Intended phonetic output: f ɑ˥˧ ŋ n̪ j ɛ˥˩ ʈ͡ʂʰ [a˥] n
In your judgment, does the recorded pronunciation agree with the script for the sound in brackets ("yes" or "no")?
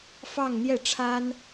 yes